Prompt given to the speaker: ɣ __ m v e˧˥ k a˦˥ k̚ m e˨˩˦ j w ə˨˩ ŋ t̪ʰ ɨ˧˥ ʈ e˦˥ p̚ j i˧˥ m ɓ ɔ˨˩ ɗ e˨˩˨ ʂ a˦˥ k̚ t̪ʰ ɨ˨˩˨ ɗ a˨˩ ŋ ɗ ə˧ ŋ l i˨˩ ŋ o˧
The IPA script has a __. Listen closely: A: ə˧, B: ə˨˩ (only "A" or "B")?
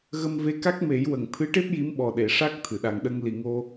A